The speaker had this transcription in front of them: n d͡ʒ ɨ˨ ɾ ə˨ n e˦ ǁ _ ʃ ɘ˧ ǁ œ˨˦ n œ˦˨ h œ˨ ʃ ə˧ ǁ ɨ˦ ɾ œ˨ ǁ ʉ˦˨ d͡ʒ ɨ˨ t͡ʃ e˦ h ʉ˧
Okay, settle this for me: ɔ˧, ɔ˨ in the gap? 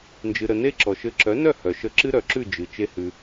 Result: ɔ˨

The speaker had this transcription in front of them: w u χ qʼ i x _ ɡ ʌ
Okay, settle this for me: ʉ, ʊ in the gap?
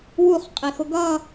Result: ʊ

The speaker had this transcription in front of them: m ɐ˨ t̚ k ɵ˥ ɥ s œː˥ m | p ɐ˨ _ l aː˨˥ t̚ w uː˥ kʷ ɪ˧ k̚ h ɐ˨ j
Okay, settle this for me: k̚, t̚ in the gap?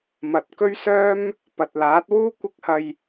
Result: t̚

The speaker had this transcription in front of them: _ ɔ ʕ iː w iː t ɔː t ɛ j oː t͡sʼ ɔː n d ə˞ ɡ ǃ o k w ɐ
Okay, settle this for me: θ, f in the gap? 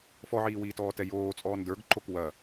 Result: f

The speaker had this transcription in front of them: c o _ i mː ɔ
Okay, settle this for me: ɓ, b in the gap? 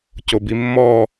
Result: b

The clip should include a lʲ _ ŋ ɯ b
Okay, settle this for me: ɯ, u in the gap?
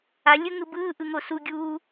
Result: ɯ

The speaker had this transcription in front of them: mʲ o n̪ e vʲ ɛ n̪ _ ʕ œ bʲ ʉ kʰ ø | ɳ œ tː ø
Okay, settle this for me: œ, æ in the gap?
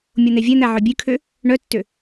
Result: æ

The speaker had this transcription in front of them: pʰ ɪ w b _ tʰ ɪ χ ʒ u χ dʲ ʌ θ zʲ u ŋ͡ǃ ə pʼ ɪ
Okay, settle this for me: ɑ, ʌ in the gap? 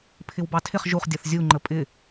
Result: ɑ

